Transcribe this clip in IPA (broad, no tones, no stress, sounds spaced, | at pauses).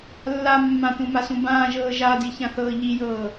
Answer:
lː a mː ã t ũ m a s ũ b ãː ʒ ɤː ʒ a d i ç ã θ ɤː ʎ i j ɤː